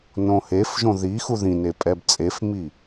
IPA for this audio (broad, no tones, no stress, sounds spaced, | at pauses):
n õ h e f ʒ õ ð i x u ð ĩ n e pʼ ɛ b t͡sʼ e f m i